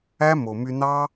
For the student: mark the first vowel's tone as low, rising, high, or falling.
high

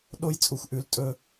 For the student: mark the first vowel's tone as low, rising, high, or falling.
high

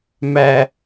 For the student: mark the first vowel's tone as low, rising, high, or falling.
high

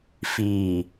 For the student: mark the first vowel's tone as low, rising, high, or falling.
low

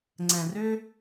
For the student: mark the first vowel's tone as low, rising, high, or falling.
low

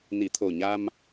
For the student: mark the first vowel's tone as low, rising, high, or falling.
low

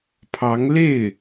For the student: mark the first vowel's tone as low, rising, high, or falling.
rising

